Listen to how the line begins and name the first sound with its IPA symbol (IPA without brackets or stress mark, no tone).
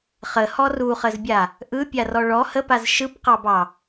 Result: χ